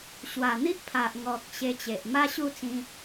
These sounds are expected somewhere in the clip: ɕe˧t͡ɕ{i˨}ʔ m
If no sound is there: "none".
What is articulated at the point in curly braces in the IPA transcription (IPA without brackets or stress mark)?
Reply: e˨